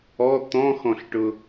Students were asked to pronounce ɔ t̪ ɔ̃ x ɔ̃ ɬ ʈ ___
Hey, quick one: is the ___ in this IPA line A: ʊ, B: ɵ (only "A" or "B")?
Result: A